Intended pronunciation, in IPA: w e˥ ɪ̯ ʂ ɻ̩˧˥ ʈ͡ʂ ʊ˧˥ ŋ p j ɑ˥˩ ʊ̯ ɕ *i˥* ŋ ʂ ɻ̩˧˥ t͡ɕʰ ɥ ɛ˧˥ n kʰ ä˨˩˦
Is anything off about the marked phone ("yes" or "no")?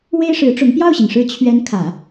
yes